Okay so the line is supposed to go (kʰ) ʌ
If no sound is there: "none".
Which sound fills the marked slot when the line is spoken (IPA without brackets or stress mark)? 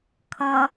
kʰ